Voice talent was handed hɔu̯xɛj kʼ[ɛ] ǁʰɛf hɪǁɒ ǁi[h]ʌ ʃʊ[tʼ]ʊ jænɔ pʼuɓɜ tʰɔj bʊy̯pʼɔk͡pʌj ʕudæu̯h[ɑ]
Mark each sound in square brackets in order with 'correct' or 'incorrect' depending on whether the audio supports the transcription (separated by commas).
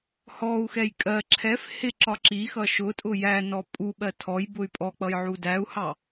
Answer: incorrect, incorrect, correct, correct